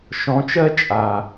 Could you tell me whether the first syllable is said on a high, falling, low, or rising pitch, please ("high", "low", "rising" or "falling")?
rising